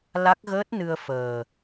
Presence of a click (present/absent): absent